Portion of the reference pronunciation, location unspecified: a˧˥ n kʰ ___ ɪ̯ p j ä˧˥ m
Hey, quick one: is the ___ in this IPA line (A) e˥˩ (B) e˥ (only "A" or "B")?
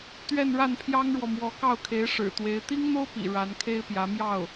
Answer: B